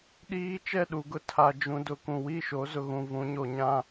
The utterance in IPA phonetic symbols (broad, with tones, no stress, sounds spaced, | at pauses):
ɗ iː˦ t͡ʃ ɛ˦˨ ɗ u˨ ɡ ʊ˦ tʰ a˨ d͡ʒ ũ˨ d ʊ˨˦ k ũ˨ w i˦˨ ʃ o˨˦ z ʊ˨ ɣ ũ˨ v ũ˨˦ ɲ o˨ ɲ ã˦